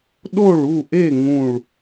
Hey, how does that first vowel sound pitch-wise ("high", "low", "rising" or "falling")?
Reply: falling